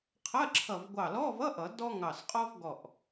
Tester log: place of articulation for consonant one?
uvular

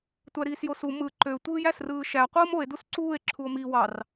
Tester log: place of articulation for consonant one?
alveolar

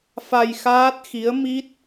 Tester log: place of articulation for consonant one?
labial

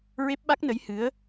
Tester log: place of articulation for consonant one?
alveolar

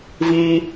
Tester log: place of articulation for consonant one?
labial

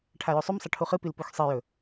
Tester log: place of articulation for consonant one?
retroflex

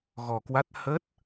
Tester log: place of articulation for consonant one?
velar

